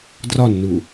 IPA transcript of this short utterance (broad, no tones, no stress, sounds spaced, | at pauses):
d r ɒ nː u